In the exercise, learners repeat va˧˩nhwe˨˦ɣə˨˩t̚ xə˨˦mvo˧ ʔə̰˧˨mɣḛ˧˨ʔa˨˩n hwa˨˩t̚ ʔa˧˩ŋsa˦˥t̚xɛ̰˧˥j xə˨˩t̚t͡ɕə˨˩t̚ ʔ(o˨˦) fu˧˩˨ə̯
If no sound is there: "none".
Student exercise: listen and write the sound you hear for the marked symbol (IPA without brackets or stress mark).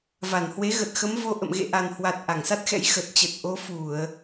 o˨˦